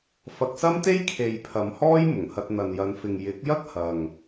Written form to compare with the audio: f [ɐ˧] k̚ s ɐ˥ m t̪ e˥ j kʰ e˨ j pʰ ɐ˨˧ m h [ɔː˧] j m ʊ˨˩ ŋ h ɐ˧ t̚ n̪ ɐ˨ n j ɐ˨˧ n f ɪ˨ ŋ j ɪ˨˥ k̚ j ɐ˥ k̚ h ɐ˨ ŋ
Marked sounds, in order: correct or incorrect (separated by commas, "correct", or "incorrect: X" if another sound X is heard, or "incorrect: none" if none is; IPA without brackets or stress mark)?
correct, incorrect: ɔː˥